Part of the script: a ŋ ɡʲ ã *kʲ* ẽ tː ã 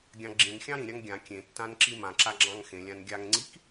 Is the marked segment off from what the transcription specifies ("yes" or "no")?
no